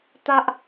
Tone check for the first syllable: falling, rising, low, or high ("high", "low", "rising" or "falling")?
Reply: high